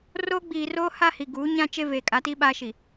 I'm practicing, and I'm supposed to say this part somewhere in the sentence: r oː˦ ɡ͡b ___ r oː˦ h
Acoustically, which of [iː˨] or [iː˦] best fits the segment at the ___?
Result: iː˨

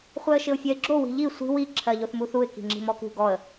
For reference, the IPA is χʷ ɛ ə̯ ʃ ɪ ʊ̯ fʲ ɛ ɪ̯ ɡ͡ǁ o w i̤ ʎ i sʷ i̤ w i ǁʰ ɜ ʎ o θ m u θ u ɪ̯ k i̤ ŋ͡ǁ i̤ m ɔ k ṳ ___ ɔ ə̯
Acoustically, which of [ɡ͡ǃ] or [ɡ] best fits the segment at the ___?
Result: ɡ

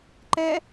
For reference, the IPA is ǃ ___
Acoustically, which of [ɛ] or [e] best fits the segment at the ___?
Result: ɛ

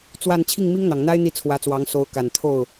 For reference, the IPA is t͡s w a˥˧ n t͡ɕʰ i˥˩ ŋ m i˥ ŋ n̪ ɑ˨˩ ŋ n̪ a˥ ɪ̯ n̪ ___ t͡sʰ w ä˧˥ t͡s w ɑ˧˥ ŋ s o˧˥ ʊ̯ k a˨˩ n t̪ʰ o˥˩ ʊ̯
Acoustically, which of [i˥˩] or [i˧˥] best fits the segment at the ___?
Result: i˥˩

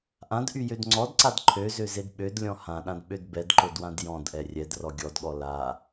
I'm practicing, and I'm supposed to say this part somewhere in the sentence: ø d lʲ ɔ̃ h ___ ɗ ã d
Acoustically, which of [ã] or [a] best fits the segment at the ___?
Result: ã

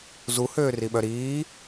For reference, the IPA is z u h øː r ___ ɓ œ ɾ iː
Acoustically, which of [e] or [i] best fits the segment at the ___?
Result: i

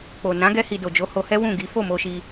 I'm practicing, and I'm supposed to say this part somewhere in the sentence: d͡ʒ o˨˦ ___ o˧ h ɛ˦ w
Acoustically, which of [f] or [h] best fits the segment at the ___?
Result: h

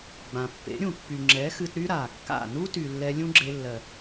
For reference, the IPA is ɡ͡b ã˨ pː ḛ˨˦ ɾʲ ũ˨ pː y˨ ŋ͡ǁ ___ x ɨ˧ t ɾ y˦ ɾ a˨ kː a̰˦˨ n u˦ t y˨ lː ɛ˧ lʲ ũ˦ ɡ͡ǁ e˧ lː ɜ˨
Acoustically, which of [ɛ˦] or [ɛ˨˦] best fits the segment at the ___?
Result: ɛ˨˦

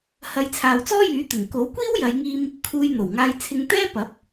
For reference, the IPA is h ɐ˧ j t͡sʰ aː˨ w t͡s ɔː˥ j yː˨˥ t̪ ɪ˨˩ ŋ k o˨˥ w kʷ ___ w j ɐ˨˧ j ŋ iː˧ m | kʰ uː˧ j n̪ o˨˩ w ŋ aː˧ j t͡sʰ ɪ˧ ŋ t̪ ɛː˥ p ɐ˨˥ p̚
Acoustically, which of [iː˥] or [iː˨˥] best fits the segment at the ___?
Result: iː˥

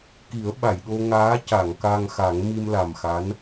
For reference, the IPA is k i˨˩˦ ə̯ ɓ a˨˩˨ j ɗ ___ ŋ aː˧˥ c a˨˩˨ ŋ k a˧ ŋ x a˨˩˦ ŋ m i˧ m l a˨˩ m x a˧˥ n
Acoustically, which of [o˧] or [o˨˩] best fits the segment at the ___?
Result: o˧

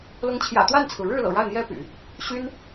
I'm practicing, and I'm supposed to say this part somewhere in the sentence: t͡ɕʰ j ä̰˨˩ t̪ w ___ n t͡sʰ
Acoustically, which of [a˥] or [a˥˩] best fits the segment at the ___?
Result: a˥˩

